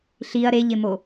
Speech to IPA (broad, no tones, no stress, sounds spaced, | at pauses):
ɬ i ɐ̯ ɾ e ʎ ɪ m o